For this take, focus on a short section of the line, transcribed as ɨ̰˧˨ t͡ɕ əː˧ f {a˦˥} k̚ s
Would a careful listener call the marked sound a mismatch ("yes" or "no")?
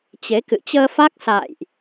no